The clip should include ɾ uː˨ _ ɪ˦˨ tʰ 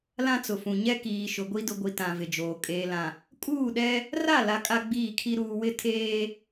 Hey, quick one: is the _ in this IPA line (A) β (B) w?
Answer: B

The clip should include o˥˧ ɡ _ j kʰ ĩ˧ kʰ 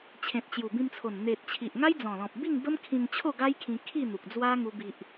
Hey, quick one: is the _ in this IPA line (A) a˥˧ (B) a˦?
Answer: B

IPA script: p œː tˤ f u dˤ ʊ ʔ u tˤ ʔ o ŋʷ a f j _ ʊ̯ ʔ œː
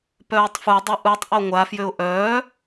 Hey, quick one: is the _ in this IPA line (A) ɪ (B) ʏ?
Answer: B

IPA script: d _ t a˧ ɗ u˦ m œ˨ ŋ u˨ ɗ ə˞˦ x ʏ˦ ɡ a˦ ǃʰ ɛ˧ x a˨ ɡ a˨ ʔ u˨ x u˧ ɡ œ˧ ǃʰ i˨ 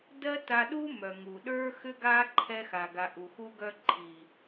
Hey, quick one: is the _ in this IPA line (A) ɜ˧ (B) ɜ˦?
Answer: B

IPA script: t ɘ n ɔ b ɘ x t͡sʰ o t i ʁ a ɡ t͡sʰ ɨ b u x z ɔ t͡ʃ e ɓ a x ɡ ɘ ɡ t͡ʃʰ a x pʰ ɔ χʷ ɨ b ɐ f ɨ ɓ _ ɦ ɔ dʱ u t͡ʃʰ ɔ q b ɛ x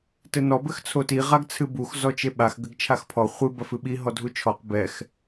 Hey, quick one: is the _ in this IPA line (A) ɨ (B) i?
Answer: B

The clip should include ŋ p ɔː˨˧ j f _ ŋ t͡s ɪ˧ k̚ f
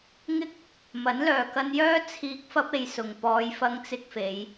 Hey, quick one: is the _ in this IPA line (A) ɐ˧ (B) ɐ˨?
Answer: A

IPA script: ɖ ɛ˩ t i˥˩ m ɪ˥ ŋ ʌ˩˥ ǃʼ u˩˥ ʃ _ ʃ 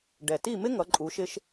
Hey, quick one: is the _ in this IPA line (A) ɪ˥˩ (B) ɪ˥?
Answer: B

